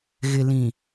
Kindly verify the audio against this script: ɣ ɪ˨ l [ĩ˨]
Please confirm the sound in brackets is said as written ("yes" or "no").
yes